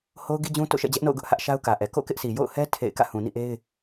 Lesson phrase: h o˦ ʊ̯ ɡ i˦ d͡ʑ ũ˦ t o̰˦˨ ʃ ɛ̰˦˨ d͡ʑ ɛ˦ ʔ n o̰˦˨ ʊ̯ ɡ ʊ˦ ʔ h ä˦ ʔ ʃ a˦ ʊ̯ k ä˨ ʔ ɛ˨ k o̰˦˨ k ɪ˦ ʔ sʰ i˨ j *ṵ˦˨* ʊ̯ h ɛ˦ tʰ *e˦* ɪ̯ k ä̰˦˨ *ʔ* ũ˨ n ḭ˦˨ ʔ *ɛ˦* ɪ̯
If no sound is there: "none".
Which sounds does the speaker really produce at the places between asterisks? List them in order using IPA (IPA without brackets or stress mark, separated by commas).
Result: o̰˦˨, ḛ˦˨, h, e˦